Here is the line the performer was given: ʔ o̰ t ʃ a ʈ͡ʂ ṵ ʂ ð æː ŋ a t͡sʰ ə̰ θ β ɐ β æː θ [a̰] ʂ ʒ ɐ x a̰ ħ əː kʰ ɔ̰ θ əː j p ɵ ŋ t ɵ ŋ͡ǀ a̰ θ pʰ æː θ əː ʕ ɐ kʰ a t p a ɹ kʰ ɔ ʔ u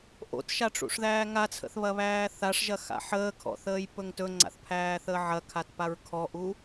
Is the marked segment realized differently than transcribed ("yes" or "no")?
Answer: yes